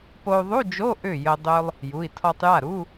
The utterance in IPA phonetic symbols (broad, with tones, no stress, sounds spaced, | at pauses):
p o˧ u̯ ðˤ u˧˥˧ d͡ʒ o˧˥˧ ʔ ʏ˥˩ j ə˧ dˤ ø˧ lˠ | j u˩˧˩ i̯ tʰ ɔ˧ tˤ j a˥˩ ɾ u˧˥˧